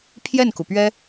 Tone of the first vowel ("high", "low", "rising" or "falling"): falling